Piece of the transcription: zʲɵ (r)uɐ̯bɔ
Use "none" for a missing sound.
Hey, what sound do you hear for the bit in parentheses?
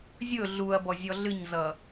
ɮ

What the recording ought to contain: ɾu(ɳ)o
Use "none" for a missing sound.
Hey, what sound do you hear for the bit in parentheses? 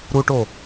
ʈ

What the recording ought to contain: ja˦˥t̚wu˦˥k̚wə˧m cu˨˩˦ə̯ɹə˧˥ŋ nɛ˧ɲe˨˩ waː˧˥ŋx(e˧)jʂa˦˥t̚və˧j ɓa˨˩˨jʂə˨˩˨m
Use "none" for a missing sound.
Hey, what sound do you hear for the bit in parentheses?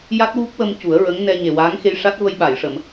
e˧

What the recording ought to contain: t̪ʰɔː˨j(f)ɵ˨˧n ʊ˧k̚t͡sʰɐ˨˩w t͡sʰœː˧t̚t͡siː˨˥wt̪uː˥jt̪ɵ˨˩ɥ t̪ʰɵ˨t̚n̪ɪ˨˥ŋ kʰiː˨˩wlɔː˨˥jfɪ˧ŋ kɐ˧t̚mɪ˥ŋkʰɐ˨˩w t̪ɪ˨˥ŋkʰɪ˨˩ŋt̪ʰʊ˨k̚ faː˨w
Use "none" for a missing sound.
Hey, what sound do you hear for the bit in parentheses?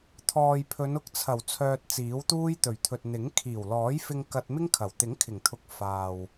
pʰ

